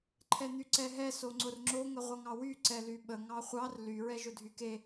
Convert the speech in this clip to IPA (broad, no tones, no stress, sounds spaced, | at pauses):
ǃʰ ɛ n̪ y ǀ ɛ ɦ ɛ s o ŋ͡ǀ ʊ r ŋ͡ǁ o ŋ ə ʁʷ ʌ ŋ ɑ w y ǀ ɛ l y ɓ ə ŋ ɑ χʷ ɑ r l y ɹ ɛ ʒ ʊ dʱ y k e